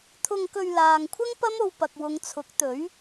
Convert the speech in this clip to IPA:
t̪ʰʊ˧ŋkɵ˧ɥlaː˨ŋkʷʰɐ˥ŋ pɐ˥mo˧wpɐ˨k̚ wʊ˨˧ŋt͡sʰʊ˨˥k̚t̪ɵ˨˥ɥ

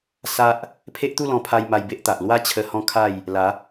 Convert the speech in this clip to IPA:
sa˦ʔ | pʰe˦ʔt̪u˥˧lɔ̃˧pʰa˧j ma˧jbe˦ʔt̪a˨ʔ lwa˦t͡ɕʰə˧ hɔ̃˦kʰa˥˧j | la˨˦

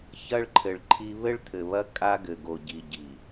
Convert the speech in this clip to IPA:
çɐ˦ɭǃʰɘ˨ɭǃʰi˦ βɘ˦ɭt̪ʰɘ˨βɐ˦ kʼa˦ɡɘ˨ɡo˨ ɟi˨ ɟi˨

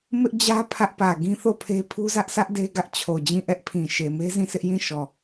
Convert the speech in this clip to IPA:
mɪ˦ʔd͡ʑä˦ pʰä˦ʔpä˨ ɡĩ˦θo˦˨pʰe˦pʰu˦ zä˦ʔsä˦ʔ de˦ɡä˦ʔt͡ɕʰo˨d͡ʑĩ˦˨ ʔɛ˦ʔpʰĩ˨ʃe˨ me˦zĩ˦˨sʰɪ˦ʔ jĩ˦˨ʃɔ˨

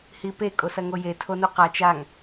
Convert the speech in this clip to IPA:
hipe kʼosɐŋoje tʰonuqat͡ʃ aŋ

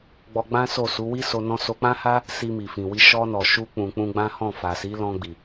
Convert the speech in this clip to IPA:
ɡ͡bɔ˧ɡ͡bã˦so˦˨su˨˦ wi˦ so˧ nɔ̃˧so˧k͡pã˦ha˦ | si˧mi˨fĩ˨wi˧ ʃɔ˧nɔ˨ʃu˧ k͡pũ˨k͡pũ˧ɡ͡bã˦ hɔ̃˦˨fa˨ si˨˦lɔ̃˧ɡ͡bi˨

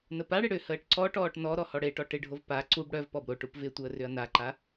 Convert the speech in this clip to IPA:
nəpaɽɪ ɽʏhəːʈ ǀɔʈɔːʈ nɔɾɔ hɔɽeʈɔ ʈɪɖʱov pa ǀub ɽœv pɔbɾoʈup vɪtʷəː rʏɐ̯naǃa

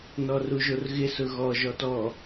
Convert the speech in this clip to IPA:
nɔruʒorɣɪ sʊɣɔ ʒɔtɔ

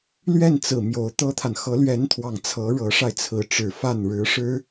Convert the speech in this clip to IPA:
lɥɛ˥˩n t͡sɹ̩˨˩ mjo˧˥ʊ̯t̪ɤ˥t̪ʰa˨n xɤ˧˥lɥɛ˧˥nt̪ʰwɑ˨˩ŋ t͡sʰɤ˧˥ ɻɤ˧˥ʂa˧ɪ̯t͡sʰɹ̩˧˥ ʈ͡ʂɻ̩˨˩fa˥˩n ɻɻ̩˧˥ʂɻ̩˥

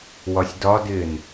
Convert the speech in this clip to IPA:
wɒsʲdɒdɪːn

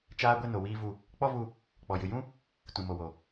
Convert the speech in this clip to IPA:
t͡ʃaː˧ ɡʷɛ˦no˨wiː˦vu˧ | k͡pɔ˦vu˧ | k͡pɔ˨jɨ˨ jũ˦ | tũ˨mo˨wo˨

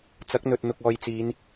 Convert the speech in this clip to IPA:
t͡sɐ˨˥k̚n̪ɵ˨t̚n̪ʊ˨k̚ ɔː˨jt͡siː˨˧n

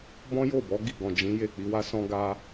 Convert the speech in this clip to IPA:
bɔ̃˦jo˦˨ bɔ˨˦ ɡi˦˨ɡɔ̃˨d͡ʒĩ˨˦ je˦˨k͡pi˨˦wa˦sɔ̃˦ ɡa˦

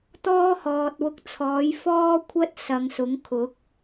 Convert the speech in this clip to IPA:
t̪ɔː˥ hɔː˨t̚wʊ˧k̚t͡sʰɔː˨˥j fɔː˥kʷʰɐ˥t̚ sɐ˨ŋsʊ˨˥ŋkʰʊ˨˥k̚

